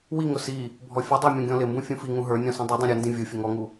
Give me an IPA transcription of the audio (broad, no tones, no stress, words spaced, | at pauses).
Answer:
wiŋʊ si | bʱɔfʲʌdˤə˞ mʲɔ̃ɡʲɔ̃lɪmbũ fʲũfiŋũ ɦə˞nʲɔ̃ sĩdˤudˤĩ ɾʲʌndĩ vʲufʲə ŋɔŋu